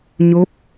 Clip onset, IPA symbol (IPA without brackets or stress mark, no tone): ɲ